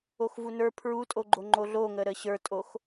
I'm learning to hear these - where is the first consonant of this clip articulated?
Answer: velum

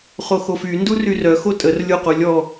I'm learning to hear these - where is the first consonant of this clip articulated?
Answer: uvula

